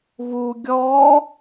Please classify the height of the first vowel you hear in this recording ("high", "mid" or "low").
high